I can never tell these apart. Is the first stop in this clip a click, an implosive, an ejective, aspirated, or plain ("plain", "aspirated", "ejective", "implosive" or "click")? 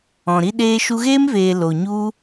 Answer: implosive